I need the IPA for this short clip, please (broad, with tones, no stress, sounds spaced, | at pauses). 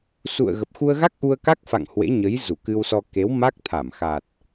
s ṵ˧˨ ə̯ ɣ ə˨˩ p̚ x u˧ ə̯ ɣ a˦˥ k̚ ʔ u˧ ə̯ k a˦˥ k̚ f a̰˧˨ ŋ h w ḛ˧˥ ɲ ə˨˦ j z u˧˩ k ɨ˧ w s ɔ˧ k e˨˦ w m a˦˥ k̚ t̪ʰ a˧˩ m x a˨˩ t̚